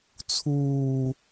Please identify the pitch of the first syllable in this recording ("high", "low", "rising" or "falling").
low